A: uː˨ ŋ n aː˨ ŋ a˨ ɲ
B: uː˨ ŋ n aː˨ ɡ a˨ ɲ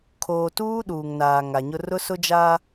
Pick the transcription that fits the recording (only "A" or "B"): A